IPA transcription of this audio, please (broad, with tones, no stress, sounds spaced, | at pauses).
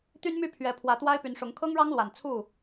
t̪ y˦ n m y˥˨ pʰ ɥ ɛ˨˦ pʰ w ä˨˦ t̪ w a˦ ɪ̯ p y˨˦ n ʂ ʊ˨˦ ŋ kʰ ɤ˦ ŋ ɻ ɑ˦ ŋ l w a˨˩ n t͡sʰ u˥˨